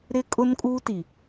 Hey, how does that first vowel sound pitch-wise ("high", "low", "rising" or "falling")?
high